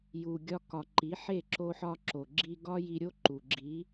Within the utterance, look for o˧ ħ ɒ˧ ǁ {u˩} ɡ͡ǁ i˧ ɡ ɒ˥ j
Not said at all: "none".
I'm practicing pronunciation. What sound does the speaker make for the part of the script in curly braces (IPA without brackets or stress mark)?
o˩